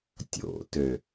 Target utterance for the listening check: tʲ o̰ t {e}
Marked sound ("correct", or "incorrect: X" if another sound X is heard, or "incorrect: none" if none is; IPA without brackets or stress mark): incorrect: ø